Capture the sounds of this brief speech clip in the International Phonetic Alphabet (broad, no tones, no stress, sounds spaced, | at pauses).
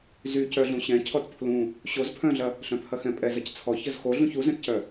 z y c œ ɮ ũ ɕ ɛ̃ cʰ ɔ t pʰ l ũ | ɕ o z pʰ œ̃ ɮ ɐ | ɬ œ̃ pʰ ɐ x ɛ̃ pʼ ɛ z ɐ c t͡sʰ ɔ ç ə z x o ɮ ũ ç u z ɛ̃ t c œ